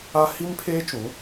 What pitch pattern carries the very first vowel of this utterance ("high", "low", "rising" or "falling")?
high